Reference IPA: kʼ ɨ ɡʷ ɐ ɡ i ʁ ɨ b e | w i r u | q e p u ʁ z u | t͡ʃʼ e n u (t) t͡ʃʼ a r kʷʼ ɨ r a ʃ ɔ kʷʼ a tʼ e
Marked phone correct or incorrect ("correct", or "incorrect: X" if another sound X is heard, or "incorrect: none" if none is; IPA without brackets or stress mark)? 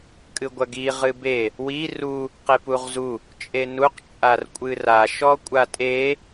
incorrect: q